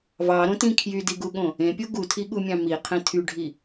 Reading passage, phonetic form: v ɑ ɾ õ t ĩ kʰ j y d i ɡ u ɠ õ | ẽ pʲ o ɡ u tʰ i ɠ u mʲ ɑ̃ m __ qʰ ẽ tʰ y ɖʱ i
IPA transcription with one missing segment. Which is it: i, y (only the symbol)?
i